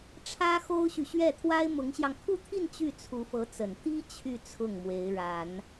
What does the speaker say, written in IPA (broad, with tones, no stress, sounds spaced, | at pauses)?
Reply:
ʈ͡ʂʰ ä˥ x o˥ ʊ̯ ɕ y˨ ɕ ɥ ɛ˥˩ t̪ʰ w a˥ ɪ̯ m ʊ˧˥ ŋ ɕ j ɑ˧ ŋ kʰ u˥˧ t̪ʰ i˥˧ n t͡ɕ y˥˩ t͡sʰ u˧˥ f ɤ˧˥ t͡s ə˨˩ n t̪ i˥ t͡ɕʰ y˥˧ t͡sʰ ʊ˥˩ ŋ m w e˧˥ ɪ̯ ɻ a˨˩˦ n